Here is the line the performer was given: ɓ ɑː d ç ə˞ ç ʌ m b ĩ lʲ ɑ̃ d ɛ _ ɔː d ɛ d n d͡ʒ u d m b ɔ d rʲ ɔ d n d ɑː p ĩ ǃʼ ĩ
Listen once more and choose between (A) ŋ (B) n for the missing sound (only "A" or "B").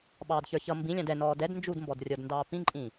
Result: B